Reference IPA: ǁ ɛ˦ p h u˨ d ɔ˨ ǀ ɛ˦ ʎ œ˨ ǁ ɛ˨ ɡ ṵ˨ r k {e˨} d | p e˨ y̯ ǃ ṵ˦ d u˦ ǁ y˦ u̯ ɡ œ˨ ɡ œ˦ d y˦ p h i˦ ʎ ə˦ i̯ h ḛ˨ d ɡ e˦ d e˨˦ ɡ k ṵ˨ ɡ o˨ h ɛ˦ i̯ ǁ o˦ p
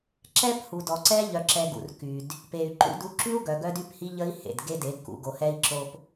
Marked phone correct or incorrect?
incorrect: y˨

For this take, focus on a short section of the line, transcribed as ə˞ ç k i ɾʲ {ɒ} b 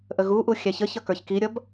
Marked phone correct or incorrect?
incorrect: ʌ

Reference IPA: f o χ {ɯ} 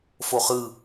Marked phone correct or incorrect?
correct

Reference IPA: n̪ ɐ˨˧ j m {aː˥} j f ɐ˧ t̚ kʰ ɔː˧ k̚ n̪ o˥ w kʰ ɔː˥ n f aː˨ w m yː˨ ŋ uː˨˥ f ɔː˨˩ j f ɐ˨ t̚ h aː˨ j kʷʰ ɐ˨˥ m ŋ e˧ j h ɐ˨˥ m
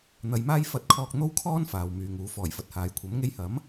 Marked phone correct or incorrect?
correct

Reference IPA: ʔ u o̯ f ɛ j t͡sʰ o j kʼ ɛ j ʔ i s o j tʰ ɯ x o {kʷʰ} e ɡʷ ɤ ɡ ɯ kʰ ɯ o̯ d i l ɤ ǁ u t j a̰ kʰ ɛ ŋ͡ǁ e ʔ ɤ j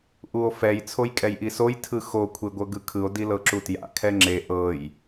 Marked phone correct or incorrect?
correct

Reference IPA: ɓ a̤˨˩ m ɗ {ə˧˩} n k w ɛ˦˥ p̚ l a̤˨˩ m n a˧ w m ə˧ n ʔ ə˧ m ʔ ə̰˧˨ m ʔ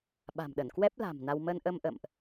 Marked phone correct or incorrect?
correct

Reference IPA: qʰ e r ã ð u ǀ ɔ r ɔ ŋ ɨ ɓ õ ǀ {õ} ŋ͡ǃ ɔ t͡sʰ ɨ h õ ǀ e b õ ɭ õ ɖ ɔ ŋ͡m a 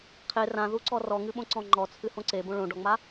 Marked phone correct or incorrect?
incorrect: ɔ̃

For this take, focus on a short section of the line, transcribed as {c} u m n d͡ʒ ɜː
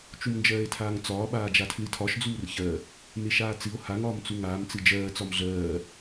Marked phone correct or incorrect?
incorrect: t͡ʃ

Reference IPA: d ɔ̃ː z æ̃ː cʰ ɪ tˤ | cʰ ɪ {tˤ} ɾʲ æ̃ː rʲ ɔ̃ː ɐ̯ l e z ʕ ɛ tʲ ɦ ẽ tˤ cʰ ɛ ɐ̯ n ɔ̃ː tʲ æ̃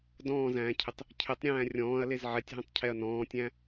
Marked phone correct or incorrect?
correct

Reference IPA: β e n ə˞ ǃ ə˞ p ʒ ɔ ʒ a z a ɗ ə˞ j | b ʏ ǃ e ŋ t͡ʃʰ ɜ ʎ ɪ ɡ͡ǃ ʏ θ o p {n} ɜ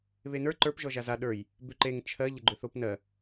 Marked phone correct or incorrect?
correct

